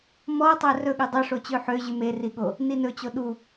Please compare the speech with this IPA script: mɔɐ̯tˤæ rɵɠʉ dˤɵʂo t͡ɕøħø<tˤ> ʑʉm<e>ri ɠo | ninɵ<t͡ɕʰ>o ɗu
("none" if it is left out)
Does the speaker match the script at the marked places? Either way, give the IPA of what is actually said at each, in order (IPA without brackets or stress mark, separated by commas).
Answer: none, e, t͡ɕ